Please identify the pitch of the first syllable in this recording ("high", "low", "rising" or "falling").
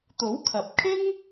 rising